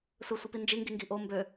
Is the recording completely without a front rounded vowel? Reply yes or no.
no